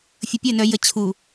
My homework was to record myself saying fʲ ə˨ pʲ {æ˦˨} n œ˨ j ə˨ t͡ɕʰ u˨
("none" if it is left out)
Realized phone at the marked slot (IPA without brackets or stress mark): œ˦˨